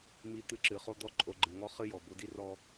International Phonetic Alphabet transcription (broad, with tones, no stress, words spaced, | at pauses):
mi˧ t̪ɨ˧ǁɨ˨χo˦ d̪ɔ˦˨ǃʼo˧ɡ͡ǃɨ˨ŋɔ˦ χɨ˦jɔ˨ bo˧di˦rɔ˦